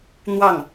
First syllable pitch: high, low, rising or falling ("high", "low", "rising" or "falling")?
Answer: falling